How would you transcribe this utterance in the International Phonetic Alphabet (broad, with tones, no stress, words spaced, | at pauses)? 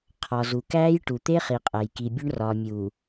qʰɒ˨zu˨kæː˦j ʈu˨t̪e˦χi˨ qʼæ˨jki˨bʲo˦ɳ rɒː˨mʲuː˨